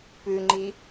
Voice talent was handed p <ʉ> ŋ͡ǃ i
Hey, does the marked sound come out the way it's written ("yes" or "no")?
yes